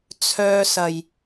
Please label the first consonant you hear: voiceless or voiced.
voiceless